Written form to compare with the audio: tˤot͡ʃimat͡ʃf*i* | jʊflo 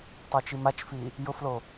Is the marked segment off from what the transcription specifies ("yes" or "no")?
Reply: no